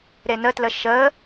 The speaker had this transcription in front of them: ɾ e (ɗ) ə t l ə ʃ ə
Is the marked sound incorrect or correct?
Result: incorrect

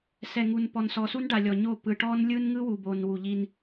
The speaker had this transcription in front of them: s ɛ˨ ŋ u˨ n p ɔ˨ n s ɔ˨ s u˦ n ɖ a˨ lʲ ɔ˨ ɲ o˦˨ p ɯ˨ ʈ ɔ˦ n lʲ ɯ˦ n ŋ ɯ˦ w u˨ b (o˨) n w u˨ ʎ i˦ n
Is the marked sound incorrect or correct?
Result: correct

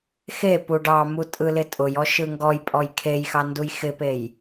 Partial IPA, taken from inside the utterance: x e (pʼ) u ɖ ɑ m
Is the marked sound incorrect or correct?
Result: incorrect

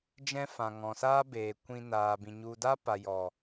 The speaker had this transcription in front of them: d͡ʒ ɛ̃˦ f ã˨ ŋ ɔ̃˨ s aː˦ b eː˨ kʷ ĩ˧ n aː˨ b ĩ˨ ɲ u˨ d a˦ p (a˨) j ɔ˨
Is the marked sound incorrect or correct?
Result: correct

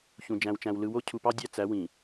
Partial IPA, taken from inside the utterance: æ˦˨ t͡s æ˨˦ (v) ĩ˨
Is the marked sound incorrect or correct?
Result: incorrect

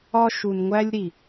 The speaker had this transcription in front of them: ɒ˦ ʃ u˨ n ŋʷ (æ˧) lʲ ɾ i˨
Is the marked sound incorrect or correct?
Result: correct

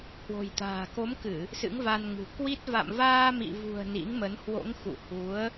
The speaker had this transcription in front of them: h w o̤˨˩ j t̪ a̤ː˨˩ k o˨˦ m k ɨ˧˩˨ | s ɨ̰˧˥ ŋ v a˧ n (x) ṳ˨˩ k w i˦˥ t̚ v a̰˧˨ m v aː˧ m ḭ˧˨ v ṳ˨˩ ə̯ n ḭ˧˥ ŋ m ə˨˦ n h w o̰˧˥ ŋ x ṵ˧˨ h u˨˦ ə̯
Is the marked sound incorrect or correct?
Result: incorrect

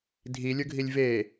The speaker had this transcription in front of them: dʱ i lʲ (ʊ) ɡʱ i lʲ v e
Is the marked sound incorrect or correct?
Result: correct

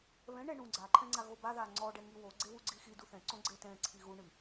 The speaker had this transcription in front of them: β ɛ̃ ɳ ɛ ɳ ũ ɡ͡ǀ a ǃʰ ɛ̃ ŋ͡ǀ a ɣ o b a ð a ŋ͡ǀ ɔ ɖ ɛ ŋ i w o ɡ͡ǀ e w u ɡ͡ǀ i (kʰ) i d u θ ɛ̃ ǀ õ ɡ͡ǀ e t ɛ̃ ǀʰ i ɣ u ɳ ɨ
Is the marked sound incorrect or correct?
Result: incorrect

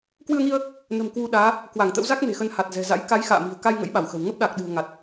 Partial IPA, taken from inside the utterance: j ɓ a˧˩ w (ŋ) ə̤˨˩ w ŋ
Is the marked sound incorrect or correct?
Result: incorrect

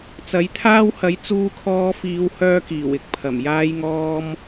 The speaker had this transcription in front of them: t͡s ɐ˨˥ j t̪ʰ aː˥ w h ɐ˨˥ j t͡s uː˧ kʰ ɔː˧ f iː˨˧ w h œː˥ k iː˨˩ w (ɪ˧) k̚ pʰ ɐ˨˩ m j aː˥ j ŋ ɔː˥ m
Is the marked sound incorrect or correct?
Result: correct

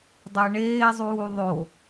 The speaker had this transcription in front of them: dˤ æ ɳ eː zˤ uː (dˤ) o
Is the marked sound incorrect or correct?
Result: incorrect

